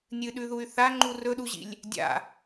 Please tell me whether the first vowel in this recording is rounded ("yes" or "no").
no